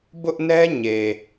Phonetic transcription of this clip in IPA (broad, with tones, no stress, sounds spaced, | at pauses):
b ʊ˦ ʔ n ɛ˦ ɲ e˨